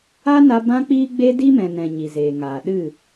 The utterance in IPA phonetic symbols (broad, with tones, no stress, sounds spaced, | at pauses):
a˦ n a˧ b ã˦ k͡p iː˦ ɡ͡b e˦ d i˦ m ɛ̃˨ n ɛ̃˨ ɲ i˨ z eː˨ ŋ aː˨ ɗ ɨ˦˨